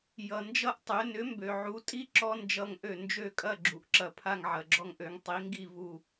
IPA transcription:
j ʌ˩ n d͡ʒ ʌ˦ ʔ tˤ ø˩˥ n ʏ˩˥ m b ø˩ ʕ u˩˥ tʼ i˦ ǁ ɔ˦ n d͡ʒ ʌ˧˩ ŋ ʔ ø˧˩ n d͡ʒ ø˥˨ kʼ ɐ˥˨ ɡ͡ǁ u˩ ʔ ǁ ɐ˧˩ pʰ a˥˨ ŋ ʕ ɐ˩ ɡ͡ǁ ɔ˦ ŋ ʔ ø˩˥ ŋ tˤ i˩˥ ŋ ɡ i˥˨ v u˧˩

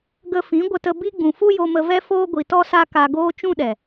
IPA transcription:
ɡ ə˧ f ĩ˨˦ ɡʷ ə˧ t ə˧ b i˧ ɡ͡b ũ˨ f u˦ j o˧ m ə˧ v ɛ˦ f oː˧ ɡʷ i˨ t ɔ˧ s a˧ k a˧ ɡ oː˦ t͡ʃ ũ˦ ɗ ɛ˨

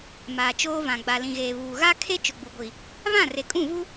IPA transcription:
m aː˨ t͡ʃ oː˦ v ã˨ ɡ͡b a˨ l ĩ˨ ɣ eː˨ β uː˨ ɣ a˦ kʰ e˦ t͡ʃ ʊ˨ ɡ͡b u˨ ɡʷ i˨ | β ã˦˨ r e˨ kʼ ũ˦˨ v u˦

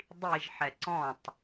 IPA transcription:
dˤ i ʒ ħ ɛ ǀ ɔ̃ tˤ

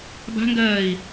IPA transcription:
b a̤ ŋ ɡ ɜː i̯

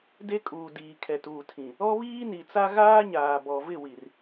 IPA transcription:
d e˦ kʼ uː˨ d iː˨ kʰ ɛ˨ t uː˨ tʰ ĩ˨ | ɔ˦ β iː˦ n i˨ t͡s a˦ ɣ aː˦ ɲ aː˨ b ɔ˨ v ɪ˦˨ w i˨ r

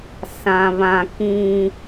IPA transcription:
s ã˦ β ã˦ k ĩ˦

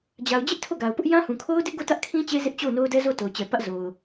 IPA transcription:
d͡ʑ a˨ ʊ̯ d͡ʑ ɪ˦ ʔ tʰ o˦˨ ɡ a˨ ʊ̯ p ʊ˦ ʔ j ã˦ h ũ˨ kʰ o˦ ʊ̯ d ɪ˦ ʔ ɡ o˦˨ t ä˦ ʔ kʰ ĩ˦ t͡ɕ e˦ z ɪ˦ ʔ t͡ɕ o˦˨ ʊ̯ n o˦ ʊ̯ d ɛ˦ z o˦˨ t o˨ ʊ̯ t͡ɕ ɛ˨ p ä˦ ʔ z o˨ ʊ̯

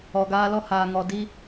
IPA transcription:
ɔ˨ ɡ aː˦ l ɔ˦ h aː˨ ŋ ɔ˨ d i˦

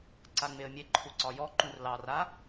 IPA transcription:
ǀ a ŋ͡m e ə̯ mʲ e ǃʰ u ǀ ɒ j ɔ ǃ ũ r l ɑ r a

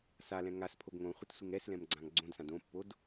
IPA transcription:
s a l ɛ̃ ŋ a s pʰ o ɡ ŋ õ χʷ ɪ t sʷ ɪ ŋ ɛ s l ɛ̃ m ɡ͡ǀ ã ŋ ɡ͡ǀ õ d s ã d õ pː o d

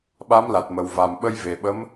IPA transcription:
ɓ a˧˥ m l a˨˩ t̚ m ə˨˩ w v a˨˩ m ɓ ə˧ j v e˨˩ ɓ ə˧˥ m

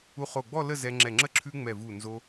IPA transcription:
u˧ χ o˧˩ ɡ͡b ɔ˥˧ l ə˥˧ z ɛ˧ ŋ͡ǁ ɛ˧˩ ŋ͡ǁ ə˥ ǁʰ ʉ˧ ŋ͡m ɛ˧˩ v u˧˩ n z o˧

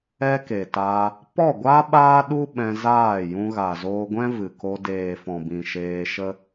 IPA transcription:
ɛ˦ k e˨ t aː˧ | p ɔ˦˨ ɡʷ a˦ ɓ aː˦ ɗ u˦ ɓ ɛ̃˧ z aː˦˨ j ũ˧ ɣ a˨ z oː˧ ɡʷ ɛ̃˦ v ɨ˨ k o˧ d eː˨ f ɔ̃˨ b ĩ˨ ʃ eː˧ ʃ ə˦

